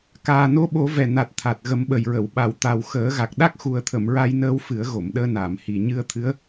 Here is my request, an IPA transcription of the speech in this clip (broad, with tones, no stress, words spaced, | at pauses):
kaː˨˩no˧˥ɓo˨˩˦ vɛ˨˩na˨˩t̚ t̪ʰa˨˩t̚ɣə˨˩˦mɓə˨˩jɹə˨˩˨w ɓa˨˩˨wt̪a˨˩w xəː˨˩˦ɣa˨˩k̚ ɗa˦˥k̚xu˨˩ə̯t̪ʰə˨˩˨m ɹa˧jnəː˧w fɨ˨˩˦ə̯ɣo˨˩˨mɗəː˧naː˨˩˨m hi˨˩ ɲɨ˧ə̯t̪ʰɨ˧˥ə̯